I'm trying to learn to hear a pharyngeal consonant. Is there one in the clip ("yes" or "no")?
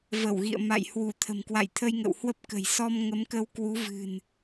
no